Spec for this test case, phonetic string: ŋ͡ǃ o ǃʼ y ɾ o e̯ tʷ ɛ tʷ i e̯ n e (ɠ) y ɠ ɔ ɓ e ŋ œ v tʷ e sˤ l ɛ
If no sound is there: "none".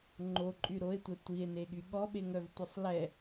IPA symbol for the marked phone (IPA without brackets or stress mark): ɠ